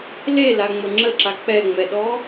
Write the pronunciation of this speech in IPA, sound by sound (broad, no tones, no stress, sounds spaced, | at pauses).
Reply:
l e l a ŋ͡m ə ŋ͡ǁ ə ǁ a k͡p ɛ ŋ͡m ɛ ɗ ɔ